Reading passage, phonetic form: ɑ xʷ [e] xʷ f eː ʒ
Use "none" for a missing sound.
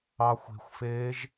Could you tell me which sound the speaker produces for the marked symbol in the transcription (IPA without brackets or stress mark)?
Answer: e̤